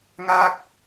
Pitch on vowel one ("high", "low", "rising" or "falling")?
falling